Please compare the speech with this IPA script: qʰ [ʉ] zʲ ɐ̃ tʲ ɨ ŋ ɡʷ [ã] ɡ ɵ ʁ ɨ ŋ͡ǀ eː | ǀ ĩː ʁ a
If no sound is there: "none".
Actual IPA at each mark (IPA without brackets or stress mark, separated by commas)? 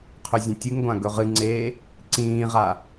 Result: ʉ, ã